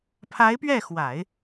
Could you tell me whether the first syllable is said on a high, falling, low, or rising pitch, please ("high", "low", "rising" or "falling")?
rising